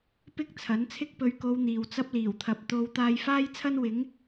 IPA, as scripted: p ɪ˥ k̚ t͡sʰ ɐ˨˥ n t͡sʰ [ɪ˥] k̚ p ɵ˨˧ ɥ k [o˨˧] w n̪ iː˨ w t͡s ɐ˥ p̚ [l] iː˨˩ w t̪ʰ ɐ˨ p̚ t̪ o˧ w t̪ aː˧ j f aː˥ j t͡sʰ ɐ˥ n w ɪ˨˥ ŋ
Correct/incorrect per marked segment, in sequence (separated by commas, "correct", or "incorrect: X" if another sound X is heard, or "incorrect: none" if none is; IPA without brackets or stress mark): correct, correct, correct